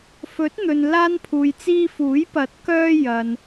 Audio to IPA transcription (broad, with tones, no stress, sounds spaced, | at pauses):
f ɵ˨˥ t̚ n̪ ɵ˨ n l aː˧ n pʰ uː˨ j t͡s iː˧ f uː˨˥ j p ɐ˨˥ t̚ k œː˧ j ɐ˨ n